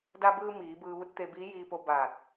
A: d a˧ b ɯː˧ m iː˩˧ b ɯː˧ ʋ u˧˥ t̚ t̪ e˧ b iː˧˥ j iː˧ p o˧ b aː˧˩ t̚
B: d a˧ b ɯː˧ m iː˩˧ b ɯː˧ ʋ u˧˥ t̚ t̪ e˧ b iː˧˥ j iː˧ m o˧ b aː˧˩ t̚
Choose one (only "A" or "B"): A